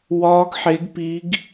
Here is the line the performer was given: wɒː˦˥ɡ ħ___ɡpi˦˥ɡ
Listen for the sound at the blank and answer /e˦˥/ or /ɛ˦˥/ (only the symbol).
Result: e˦˥